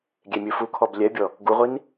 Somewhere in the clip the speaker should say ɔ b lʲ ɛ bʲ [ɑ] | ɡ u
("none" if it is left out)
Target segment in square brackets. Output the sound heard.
ɔ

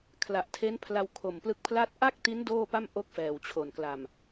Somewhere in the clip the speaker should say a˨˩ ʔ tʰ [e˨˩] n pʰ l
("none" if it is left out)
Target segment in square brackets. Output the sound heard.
e˦˥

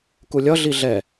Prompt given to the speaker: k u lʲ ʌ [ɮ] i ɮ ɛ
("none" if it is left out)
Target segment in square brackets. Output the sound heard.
ɮ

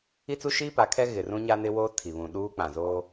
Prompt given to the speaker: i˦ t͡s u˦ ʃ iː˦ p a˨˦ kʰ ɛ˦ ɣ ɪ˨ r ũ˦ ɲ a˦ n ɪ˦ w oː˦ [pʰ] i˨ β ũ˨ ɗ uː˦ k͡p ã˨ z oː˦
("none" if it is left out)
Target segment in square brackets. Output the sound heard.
tʰ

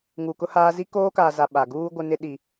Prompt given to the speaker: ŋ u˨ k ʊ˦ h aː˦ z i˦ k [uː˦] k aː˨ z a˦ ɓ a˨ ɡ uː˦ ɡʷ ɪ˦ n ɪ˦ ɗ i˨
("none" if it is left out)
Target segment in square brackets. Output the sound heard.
oː˦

